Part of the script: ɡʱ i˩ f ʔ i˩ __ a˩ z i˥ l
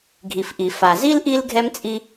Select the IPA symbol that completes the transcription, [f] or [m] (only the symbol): f